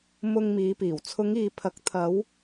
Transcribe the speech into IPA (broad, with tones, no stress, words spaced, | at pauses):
mʊ˧ŋmiː˨˧piː˨˩w t͡sʰʊ˨˧ŋiː˨pʰɐ˨˥k̚ t̪ʰɐ˨˧w